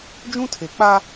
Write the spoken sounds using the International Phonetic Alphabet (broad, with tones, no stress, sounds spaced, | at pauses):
d͡ʒ ũ˦ tʰ e˨ k͡p a˦